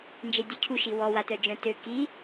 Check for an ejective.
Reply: absent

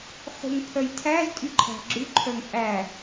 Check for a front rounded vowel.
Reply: present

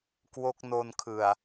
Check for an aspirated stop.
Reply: present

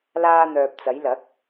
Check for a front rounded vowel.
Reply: present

